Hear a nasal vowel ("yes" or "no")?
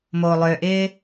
no